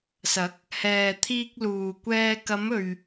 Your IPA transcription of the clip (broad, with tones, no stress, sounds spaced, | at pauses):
s ɐ˨˥ k̚ | h ɛː˨ t̪ʰ iː˧ k̚ l uː˨ kʷ ɛː˧ k ɐ˨˧ m ɵ˨ ɥ